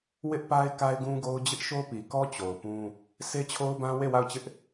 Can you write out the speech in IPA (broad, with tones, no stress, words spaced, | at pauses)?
wɪ˦ʔpa˦ɪ̯ ka˦ɪ̯ɡũ˦ɡo˦ʊ̯ d͡ʑɪ˦ʔʃo˦pi˨kɔ˦ t͡ɕo˨ʊ̯pũ˦ | sʰe˦t͡ɕʰo˦ʊ̯bã˦ we˦˨wa˦˨ʊ̯t͡ɕɪ˦ʔ